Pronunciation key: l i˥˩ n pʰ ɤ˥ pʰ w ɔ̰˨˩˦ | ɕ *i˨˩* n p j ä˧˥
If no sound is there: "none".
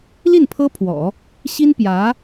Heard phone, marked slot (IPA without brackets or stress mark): i˥